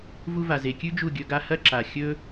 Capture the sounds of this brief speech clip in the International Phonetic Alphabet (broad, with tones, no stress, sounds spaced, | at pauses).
v u˧ v a˨ z e˨ kʲ ʉ˦ d͡ʒ u˦˨ ɡʲ ɵ˧ ɡ a˧ h ɐ˦ ǁ a˨ xʲ ɵ˦